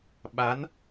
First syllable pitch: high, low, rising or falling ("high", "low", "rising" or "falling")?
rising